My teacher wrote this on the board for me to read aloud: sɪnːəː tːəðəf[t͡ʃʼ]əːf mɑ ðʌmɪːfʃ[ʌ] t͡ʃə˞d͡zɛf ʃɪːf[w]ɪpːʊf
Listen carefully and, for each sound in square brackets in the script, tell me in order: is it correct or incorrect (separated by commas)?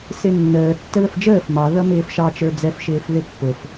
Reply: incorrect, incorrect, incorrect